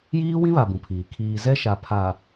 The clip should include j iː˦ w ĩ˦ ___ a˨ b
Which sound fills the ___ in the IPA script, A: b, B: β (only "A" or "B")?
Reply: B